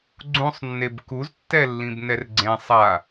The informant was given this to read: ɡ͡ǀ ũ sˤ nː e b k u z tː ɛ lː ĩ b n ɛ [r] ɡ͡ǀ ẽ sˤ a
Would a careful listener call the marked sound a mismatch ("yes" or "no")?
no